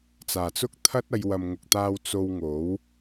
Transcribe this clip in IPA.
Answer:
t͡s aː˨˩ t͡s ʊ˥ k̚ t̪ʰ ɐ˥ t̚ ɐ˨˧ j w ɐ˨ m ŋ ʊ˨ k̚ t̪ aː˧ w t͡s o˧ w ŋ o˨˥ w

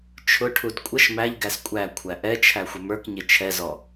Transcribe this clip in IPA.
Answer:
t͡ʃʰ ʊ ʈʰ u d kʷʼ ʌ ʃ m æ ʎ ɡ æ s kʷʼ æ kʷʰ æ ʔ ɛ t͡ʃʰ æ xʷ ə m ə˞ k ɲ ɪ t͡ʃʰ ɛ z ɔ

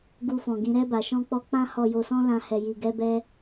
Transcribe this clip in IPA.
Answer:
ɡ u˧ f ɔ̃˨ ɡ ĩ˨˦ ɾ ɛ˧ b a˨ ʃ ɔ̃˧ k͡p ɔ˧ k͡p ã˦ h ɔ˧ j o˧ s ɔ̃˦ l ã˦ h ɛ˧ j i˧ ɡ ɛ˦ b ɛ˦

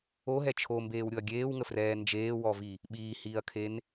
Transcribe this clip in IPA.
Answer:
o ɦ ɛ t͡ʃʰ o m b eː w ɾʲ ʊ ɐ̯ ɡʲ eː w ŋ ə f r ɛː n d͡ʒ eː w ɔ v i | ɓ iː h iː ɐ̯ kʰ e n

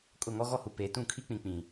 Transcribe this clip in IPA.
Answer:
kʼ ʊ˦˨ ŋ ɔ˦ ɣ ɔ˦ h u˨ p e˨ t ũ˦˨ kʰ i˦ k͡p ĩ˨ k͡p ĩ˨

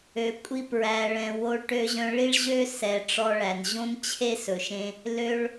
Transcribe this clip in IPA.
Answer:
ø˧ kʷʼ i˦ p ɹ æ˧ ɭ ɛ̃˧ w o˧ ɭ ʈ ø˧ ʑ œ̃˧ ɭ i˦ ɭ ʑ ø˦ s ɛ˨ ʈ͡ʂ ɔ˧ ɭ æ˨ n ʑ õ˦ n t͡ɕʰ e˦ s ɵ˨ ʃ ẽ˧ | l ø˧ ɭ

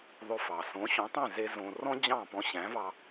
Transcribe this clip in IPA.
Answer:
ðˤ ɵ˧ f ɑ˩ s õ˩˥ ɕ õ˩˥ tˤ ẽ˥˩ z e˥ z õ˧ r ɔ̃˥ d͡ʑ ɑ̃˥˩ p ɔ̃˧ ɕ æ̃˩˥ v ɑ˧

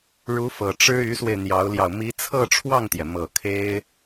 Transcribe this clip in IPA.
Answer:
ɻ u˧˥ f ɤ˨˩ ʈ͡ʂ ɻ̩˥ y˧˥ s w e˧ ɪ̯ n̪ j ɑ˧˥ ʊ̯ l j ɑ˧ ʊ̯ m i˧˥ t͡sʰ ɤ˥˧ ʈ͡ʂʰ w ɑ˥˩ ŋ t̪ j ɛ˩ m ɤ˨˩ kʰ e˥ ɪ̯

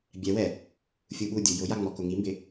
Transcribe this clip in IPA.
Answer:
bʲ ɛ w ɛ | fʲ u ɓ u dʲ u j ʊ j a ŋ͡m ɔ k ʊ ŋ i m b ɪ

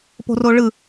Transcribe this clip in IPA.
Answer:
p o̤ r o ɭ ɯ

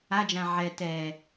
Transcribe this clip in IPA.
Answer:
a d͡ʒ ã ʕ ɛ t ɛ

